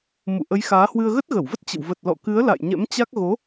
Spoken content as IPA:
m ṵ˧˨ ʔ ə˨˦ j x aː˨˦ h w ɨ˧ ə̯ ɣ ə˦˥ t̚ ɣ ə˧˩ w v ə˦˥ t̚ t͡ɕ ə̰˧˨ w v ə˨˩ t̚ l ɔ̰˧˨ k ɨ˨˦ ə̯ l a̰˧˨ j ɲ ɛ̰˧˥ m t͡ɕ a˦˥ k̚ ɣ o˨˦

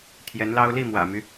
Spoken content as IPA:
t̪ʰ j ɛ˧˥ n l ɑ˥ ʊ̯ l i˥˩ m w ä̰˨˩ m y˦

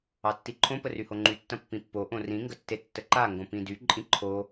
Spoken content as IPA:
ɑ tː i ǃʰ õ p ə r y h o ŋ͡ǃ y tː ɐ̃ pː ĩ pː o ʔ õ r ĩ ŋ ɡ ə tː e tː ə ǃ a ŋ ɡ õ p ĩ d y ǃʼ ĩ ǃʰ o

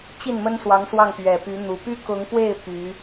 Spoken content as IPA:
t͡ɕ i˥˩ n m ə˥ n s w ɑ˧˥ ŋ s w ɑ˥˩ ŋ p ɥ ɛ˨˩ p y˧˥ n̪ u˨˩ p y˥ k ʊ˧˥ ŋ p w e˥˩ ɪ̯ p y˧˥

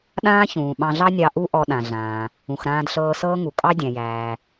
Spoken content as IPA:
ɗ ãː˥ ç ũː˩ ɓ ɑ̃˧ ɮ ɑ˥ nʲ ɑ˧ ʔ u˥ ʔ ɔ˧ ɗ ã˩ ɮ ãː˩ | ũ˩ x ɾ ãː˧ d ɬ ɤː˧ s ɤː˥ ŋ u˩ kʼ ɑ˥ dʲ æ̃˩ j æː˩

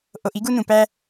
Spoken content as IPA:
ʔ o˧ ʔ i˥ ɡ u˥ n ũ˧ p æ˥

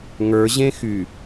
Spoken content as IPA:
ŋ ə˞ ʑ ẽ x y

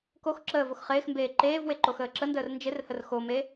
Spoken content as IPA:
k o x ǁ əː v o x χ ɪː x m b eː ǃ eː v w e ǃ o x əː ǁ ə n d əː r n d͡ʒ ɪ r h ə r x o m e

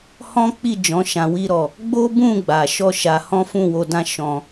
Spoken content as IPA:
h ɔ̃˦ k͡p i˦˨ d͡ʒ ɔ̃˨˦ ʃ ã˧ w i˦ ɾ ɔ˦˨ | ɡ͡b o˦ b ũ˦˨ ɡ͡b a˨ ʃ ɔ˧ ʃ a˧ h ɔ̃˦ f ũ˦˨ w o˧ d ã˦ ʃ ɔ̃˦

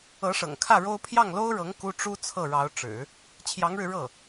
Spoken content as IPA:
ɤ˧˥ ʂ ɤ̰˨˩ ŋ kʰ ä˥˩ ɻ o˥ ʊ̯ pʰ j ɑ˥˩ ŋ l o˥ ʊ̯ ɻ ɤ˧˥ ŋ k u˥ ʈ͡ʂ u˥ t͡sʰ ɤ˥˩ ɻ ɑ˧˥ ʊ̯ ʈ͡ʂ ɻ̩˨˩˦ | t͡ɕʰ j ɑ˧˥ ŋ ɻ ɻ̩˧ ɻ ɤ˥˩

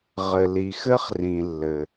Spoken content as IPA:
ʁ ɘ˩ l i˩ x ɘ˥ χ r ĩ˩ lː ɘ˩

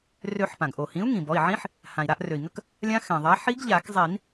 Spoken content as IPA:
r ø˨˩˦ ħ p ã˩ ɡ ʔ o˩ h ĩ˩˥ u̯ ŋ ĩ˩ b ɔ˩˧˩ i̯ ʕ ĩ˧˥ ħ | h ã˩ i̯ ɾ a˦˨ ʔ r ø˩ i̯ ŋ ə˦˨ k | lʲ ã˧˥ x ɛ̃˩ ðˤ a˩˥ ħ i˧˥ ɡ ʎ a˨˩˦ k zˤ i˨˩˦ n

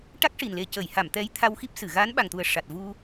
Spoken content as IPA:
ʈ a˦˥ k̚ ʂ i˨˩ n l e˨˩ c ə˨˩˨ j h a˨˩˨ m t̪ ɛ˧˥ j t̪ʰ a˧ w x i˦˥ p̚ s ɨ˨˩˨ ɣ a˧˥ n ɓ a˨˩ ŋ t̪ u˨˩ ə̯ ʂ a˨˩ t̚ v u˧

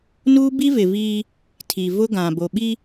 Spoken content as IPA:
n uː˦ b i˦ v ɪ˨ v iː˦ | tʰ i˨ v ʊ˦ ɡ ã˨ b o˨ ɓ i˦

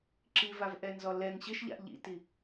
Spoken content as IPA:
ǁ i v a v ʔ ɛ n z ɔ l ɛ ŋ ɕ ɪ ʃ ʎ a̰ ʔ ʎ ḭ t i

